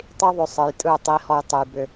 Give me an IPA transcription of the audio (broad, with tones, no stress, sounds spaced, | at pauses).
tˤ i˦ ðˤ ʏ˧ sˤ ɨ˨ j tʼ ɯ˦˨ tˤ i˧ h ɔ˧ j tˤ ɨ˨ j b ʏ˧